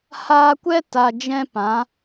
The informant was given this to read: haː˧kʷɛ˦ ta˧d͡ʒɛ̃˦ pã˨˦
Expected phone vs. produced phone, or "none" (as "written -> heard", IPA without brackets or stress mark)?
none